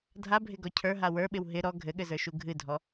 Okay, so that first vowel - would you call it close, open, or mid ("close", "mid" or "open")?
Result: open